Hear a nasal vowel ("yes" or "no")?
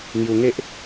no